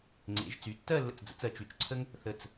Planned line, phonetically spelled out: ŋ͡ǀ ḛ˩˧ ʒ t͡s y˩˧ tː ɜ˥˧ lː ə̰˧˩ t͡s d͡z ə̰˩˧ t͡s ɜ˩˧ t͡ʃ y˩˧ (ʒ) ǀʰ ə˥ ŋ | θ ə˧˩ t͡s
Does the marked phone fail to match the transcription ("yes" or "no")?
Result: yes